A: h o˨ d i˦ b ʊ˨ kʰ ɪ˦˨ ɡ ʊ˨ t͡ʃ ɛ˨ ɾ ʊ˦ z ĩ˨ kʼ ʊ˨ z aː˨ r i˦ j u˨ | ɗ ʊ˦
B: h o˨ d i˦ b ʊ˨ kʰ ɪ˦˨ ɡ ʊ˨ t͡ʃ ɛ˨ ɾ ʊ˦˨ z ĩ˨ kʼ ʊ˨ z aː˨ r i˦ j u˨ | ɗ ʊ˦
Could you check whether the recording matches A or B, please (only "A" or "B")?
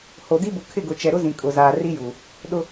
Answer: A